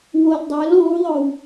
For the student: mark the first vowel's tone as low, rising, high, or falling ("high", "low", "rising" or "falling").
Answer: low